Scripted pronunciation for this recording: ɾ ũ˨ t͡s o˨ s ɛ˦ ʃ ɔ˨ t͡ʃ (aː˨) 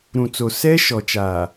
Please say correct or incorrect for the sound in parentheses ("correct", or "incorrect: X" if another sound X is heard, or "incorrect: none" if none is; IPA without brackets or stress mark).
correct